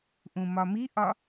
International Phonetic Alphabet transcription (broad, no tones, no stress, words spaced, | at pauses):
ʔũmɒmiʔɒ